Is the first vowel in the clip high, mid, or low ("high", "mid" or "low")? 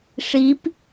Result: high